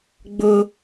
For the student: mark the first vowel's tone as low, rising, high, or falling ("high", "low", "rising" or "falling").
high